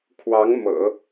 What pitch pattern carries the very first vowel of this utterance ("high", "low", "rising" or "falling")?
rising